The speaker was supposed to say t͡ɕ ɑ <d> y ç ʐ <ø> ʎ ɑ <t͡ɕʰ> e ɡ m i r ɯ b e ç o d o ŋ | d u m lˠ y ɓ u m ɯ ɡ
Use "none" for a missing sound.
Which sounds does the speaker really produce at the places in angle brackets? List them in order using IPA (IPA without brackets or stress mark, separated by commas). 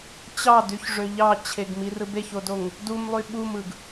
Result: d, ø, t͡ɕʰ